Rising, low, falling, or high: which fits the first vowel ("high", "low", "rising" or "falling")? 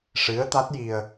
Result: rising